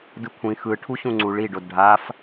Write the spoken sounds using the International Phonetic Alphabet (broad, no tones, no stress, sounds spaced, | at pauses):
d ɯ kʷʰ ĩ x ɯ ʈʰ u ɕ ũ ŋ͡ǀ u ɭ i ɖ o d ɖʱ a f